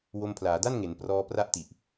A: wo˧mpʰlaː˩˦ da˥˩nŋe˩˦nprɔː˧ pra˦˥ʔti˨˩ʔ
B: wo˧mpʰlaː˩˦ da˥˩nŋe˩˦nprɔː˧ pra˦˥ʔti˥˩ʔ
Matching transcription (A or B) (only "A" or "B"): A